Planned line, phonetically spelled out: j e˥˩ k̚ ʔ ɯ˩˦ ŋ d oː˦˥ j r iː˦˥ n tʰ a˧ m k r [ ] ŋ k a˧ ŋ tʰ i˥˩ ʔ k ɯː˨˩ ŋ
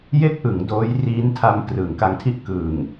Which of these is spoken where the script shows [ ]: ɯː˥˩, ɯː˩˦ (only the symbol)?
ɯː˩˦